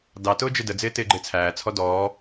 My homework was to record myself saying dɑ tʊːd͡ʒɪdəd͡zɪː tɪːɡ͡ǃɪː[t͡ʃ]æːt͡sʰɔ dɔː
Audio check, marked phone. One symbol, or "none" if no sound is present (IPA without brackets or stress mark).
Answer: t͡sʰ